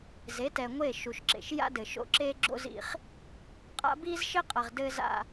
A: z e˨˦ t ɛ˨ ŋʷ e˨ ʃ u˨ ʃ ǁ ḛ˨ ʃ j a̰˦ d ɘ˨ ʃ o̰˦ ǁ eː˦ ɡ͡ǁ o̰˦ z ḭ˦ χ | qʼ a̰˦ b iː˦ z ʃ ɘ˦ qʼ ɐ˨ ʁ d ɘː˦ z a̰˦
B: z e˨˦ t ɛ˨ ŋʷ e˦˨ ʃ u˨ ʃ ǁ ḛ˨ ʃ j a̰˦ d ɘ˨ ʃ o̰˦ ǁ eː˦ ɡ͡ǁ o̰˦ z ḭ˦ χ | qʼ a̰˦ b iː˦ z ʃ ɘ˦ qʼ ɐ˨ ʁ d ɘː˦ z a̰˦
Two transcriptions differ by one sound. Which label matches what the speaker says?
B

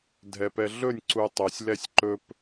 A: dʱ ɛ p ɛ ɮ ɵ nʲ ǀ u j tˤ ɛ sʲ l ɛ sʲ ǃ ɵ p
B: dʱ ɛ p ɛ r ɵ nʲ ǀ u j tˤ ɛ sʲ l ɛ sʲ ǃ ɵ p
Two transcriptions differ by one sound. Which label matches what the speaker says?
A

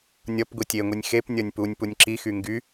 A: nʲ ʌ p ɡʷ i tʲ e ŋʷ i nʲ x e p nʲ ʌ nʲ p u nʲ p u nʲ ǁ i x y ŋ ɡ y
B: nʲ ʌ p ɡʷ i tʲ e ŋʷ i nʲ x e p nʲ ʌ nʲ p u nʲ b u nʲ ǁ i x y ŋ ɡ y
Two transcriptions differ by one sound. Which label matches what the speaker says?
A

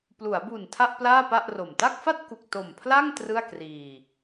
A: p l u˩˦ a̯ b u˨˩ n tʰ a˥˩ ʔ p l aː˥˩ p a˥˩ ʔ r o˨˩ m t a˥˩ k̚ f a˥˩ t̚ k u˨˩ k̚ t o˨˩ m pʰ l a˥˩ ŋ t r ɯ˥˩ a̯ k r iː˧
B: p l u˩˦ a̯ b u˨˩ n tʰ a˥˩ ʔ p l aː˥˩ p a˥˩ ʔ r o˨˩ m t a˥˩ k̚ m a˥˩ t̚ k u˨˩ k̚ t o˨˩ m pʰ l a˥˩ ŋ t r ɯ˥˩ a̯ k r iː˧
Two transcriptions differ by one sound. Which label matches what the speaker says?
A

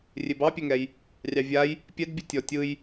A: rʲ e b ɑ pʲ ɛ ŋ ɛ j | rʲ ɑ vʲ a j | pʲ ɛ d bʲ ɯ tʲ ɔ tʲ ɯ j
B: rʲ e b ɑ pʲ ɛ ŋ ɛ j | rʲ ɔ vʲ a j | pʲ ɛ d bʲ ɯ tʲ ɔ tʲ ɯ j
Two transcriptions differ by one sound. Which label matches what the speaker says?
A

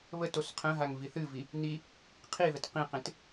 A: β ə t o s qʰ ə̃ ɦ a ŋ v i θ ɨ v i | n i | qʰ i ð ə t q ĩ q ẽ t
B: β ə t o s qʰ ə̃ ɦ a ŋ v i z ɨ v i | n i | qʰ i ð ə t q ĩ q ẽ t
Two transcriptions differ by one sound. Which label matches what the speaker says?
A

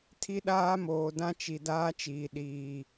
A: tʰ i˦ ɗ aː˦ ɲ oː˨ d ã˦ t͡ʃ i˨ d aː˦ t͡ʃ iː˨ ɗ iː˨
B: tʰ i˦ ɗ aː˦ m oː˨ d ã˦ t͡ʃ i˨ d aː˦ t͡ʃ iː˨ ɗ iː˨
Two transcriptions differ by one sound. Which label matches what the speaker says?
B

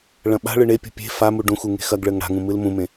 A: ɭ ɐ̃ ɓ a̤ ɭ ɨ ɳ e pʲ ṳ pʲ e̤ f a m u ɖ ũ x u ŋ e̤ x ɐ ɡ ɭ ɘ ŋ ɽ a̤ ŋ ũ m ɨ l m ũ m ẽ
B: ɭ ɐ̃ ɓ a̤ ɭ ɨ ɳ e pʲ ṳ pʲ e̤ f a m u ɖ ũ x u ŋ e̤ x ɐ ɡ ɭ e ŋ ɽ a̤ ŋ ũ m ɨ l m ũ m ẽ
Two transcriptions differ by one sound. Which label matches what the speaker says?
A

